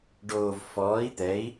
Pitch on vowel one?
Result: low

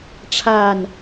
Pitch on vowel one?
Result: falling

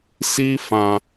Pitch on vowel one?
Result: high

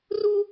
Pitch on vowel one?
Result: high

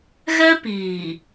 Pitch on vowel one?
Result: high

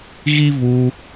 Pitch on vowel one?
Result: high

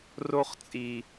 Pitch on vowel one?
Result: high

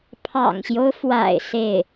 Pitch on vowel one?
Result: low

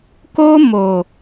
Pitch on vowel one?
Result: high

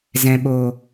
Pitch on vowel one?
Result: low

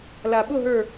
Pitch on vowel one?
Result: low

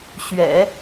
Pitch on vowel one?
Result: low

